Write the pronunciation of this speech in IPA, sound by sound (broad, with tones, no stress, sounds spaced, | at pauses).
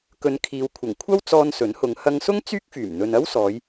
k ɵ˨˧ n kʰ iː˨˧ w kʷʰ ɐ˨˩ ŋ kʷʰ ɐ˥ w t͡s ɔː˧ n s ɵ˨˥ n h ʊ˨˧ ŋ h ɐ˧ ŋ s ʊ˥ ŋ t͡s yː˥ k̚ f yː˨˩ m n̪ ɵ˨ n ɐ˥ w s ɔː˨˧ j